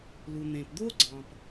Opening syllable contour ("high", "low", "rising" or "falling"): low